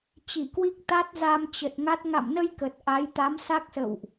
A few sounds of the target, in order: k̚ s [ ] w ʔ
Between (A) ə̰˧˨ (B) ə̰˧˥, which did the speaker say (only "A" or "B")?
A